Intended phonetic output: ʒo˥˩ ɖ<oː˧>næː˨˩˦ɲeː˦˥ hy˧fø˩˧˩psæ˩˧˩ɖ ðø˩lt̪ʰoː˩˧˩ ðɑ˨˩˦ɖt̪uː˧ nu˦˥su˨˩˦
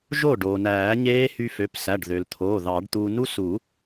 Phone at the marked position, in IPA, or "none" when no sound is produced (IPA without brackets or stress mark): oː˩